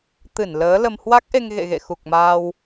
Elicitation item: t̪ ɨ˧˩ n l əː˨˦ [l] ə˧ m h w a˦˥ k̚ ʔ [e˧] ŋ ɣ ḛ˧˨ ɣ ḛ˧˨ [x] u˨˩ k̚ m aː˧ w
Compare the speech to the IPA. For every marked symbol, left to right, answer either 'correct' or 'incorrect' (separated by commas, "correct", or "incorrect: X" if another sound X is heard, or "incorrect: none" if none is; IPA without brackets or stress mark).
correct, correct, correct